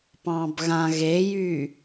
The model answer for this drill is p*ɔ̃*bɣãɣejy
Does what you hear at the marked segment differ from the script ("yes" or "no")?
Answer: yes